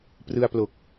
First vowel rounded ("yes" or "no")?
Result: no